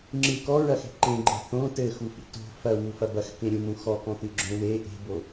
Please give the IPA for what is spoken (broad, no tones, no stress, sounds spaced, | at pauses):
ŋ͡ǁ ɨ k ɔ ɹ ɐ x e̤ ǃ ẽ ɡ͡ǃ e̤ θ õ t ɘ x u f ḭ t o̤ f ɐ w u f ɐ b ɐ x k ẽ ɾʲ ũ m ũ x ɔ k ɔ̃ t ɨ ɡ͡ǁ õ w e ʔ e̤ b o